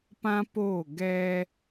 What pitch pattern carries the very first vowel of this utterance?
high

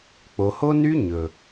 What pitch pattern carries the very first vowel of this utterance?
low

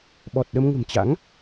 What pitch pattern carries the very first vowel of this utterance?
low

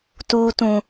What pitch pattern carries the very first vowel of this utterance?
low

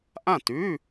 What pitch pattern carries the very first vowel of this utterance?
falling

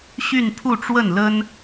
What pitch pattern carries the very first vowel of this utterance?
falling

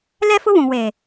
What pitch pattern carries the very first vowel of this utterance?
high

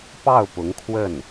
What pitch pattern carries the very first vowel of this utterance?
falling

